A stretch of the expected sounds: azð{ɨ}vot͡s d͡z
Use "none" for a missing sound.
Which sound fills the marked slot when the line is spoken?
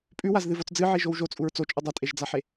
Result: ɨ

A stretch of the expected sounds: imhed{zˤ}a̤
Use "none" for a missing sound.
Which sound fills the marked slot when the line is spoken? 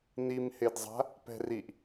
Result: zˤ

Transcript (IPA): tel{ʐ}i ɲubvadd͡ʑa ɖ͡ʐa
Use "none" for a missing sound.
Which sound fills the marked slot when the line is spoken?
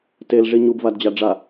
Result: ʐ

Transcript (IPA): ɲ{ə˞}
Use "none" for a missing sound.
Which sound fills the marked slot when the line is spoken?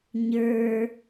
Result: ə˞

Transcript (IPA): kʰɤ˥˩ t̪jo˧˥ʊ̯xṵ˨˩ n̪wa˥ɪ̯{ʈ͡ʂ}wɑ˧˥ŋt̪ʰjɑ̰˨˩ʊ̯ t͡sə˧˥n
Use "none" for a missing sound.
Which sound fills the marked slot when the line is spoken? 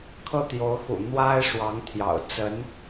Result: ʂ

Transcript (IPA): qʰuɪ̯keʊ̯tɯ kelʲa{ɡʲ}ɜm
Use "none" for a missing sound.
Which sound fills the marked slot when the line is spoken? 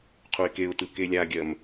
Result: ɡʲ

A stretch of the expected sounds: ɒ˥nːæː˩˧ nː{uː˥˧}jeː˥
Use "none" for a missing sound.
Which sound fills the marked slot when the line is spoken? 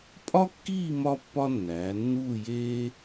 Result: uː˥˧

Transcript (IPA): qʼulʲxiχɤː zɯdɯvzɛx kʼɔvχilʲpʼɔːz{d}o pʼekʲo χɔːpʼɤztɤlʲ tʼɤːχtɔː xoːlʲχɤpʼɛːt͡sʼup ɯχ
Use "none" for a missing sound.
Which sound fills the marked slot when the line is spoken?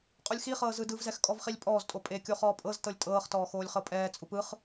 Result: tʼ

